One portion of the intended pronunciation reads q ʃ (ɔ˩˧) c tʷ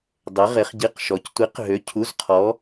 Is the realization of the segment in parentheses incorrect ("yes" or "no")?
no